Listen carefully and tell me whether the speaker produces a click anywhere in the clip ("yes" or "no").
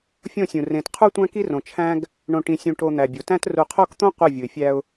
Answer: no